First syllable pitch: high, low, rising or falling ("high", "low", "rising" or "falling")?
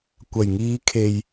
low